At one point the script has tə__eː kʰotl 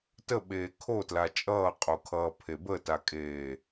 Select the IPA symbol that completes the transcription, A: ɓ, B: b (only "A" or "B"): A